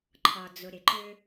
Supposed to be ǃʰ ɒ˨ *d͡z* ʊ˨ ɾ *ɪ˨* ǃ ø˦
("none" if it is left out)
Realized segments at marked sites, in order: d͡z, ɪ˨

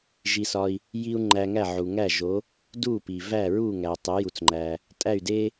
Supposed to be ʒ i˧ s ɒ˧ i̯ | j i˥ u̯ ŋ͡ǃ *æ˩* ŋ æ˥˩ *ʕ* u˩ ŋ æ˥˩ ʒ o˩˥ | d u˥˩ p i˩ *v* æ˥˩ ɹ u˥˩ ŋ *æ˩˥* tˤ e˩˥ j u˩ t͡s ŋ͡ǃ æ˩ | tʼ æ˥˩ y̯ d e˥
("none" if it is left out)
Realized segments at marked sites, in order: æ˧, ʕ, v, æ˩

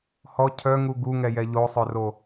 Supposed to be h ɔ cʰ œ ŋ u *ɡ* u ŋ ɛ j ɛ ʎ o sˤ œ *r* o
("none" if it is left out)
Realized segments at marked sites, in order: ɡ, r

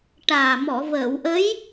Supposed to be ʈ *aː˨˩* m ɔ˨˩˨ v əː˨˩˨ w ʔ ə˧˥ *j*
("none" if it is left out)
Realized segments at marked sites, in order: aː˨˩, j

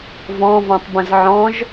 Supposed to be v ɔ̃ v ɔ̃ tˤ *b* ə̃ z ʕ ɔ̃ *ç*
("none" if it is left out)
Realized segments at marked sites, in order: b, ʒ

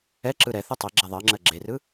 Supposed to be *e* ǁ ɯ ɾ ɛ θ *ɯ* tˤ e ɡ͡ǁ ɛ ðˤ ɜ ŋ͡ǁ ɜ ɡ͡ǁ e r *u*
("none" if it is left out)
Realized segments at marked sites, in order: ɛ, ɯ, ɯ

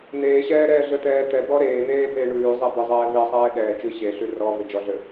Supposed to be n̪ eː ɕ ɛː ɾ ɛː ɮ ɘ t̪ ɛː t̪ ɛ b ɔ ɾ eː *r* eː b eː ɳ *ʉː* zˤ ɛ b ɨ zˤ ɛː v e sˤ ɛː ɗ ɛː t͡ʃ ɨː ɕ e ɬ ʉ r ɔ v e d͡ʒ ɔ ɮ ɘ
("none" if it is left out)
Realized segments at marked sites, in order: n̪, ʉː

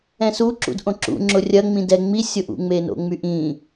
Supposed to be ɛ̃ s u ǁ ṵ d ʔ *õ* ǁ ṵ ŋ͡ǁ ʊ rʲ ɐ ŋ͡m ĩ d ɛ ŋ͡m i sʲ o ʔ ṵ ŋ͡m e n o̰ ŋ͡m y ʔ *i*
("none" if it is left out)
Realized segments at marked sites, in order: õ, ĩ

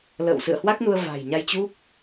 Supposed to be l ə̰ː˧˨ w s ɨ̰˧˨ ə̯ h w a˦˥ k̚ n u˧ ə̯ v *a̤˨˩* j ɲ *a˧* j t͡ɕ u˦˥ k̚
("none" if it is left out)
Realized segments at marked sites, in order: a̤˨˩, a˧

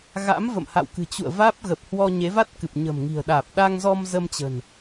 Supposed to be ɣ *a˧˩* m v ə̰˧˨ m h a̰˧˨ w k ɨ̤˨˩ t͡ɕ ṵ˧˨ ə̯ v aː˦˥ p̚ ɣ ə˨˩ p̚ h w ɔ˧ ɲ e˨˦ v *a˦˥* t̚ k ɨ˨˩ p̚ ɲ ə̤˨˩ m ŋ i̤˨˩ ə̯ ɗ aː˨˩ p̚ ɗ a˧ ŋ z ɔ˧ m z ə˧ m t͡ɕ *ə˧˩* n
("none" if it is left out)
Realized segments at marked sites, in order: a̰˧˥, a˦˥, ə̤˨˩

